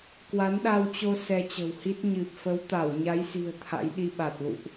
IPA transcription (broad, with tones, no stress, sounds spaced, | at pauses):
k w a˨˦ n ɗ a˧ w t͡ɕ o˧ s ɛ˧ t͡ɕ ə̤˨˩ w h i˦˥ t̚ ɲ ɨ˨˩ p̚ f ə˨˦ w t̪ a˧˩ w ɲ a˨˦ j s i̤˨˩ ə̯ t̪ʰ a̰˧˥ j ɗ i˧ ɓ a˨˩ t̚ l ṵ˧˨ ʔ